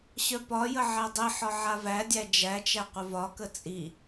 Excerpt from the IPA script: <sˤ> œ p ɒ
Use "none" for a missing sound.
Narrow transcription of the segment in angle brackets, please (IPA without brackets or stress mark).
ɕ